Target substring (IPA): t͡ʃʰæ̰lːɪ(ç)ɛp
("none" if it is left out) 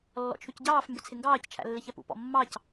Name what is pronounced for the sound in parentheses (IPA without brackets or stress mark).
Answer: ç